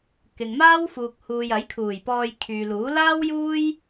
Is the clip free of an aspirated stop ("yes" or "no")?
no